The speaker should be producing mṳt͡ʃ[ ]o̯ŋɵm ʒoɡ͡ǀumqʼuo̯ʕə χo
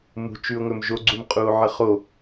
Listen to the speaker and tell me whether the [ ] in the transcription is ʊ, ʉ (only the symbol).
ʉ